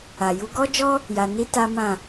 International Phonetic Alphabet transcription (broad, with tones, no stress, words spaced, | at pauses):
a˨ju˨˦ ɡɔ˦d͡ʒɔ˦ | ja˧ni˦ta˦mã˦˨